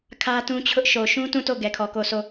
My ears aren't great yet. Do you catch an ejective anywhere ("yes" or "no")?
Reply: no